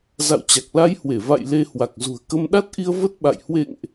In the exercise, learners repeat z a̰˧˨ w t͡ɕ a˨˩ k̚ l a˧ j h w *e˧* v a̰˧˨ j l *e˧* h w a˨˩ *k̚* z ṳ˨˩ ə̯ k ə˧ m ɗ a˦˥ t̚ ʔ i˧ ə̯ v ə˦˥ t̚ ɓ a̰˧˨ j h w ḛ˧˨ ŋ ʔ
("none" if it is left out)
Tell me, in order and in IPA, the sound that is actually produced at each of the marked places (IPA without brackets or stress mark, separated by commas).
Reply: e˧˩, e˧, k̚